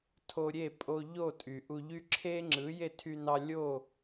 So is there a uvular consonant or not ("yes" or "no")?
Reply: no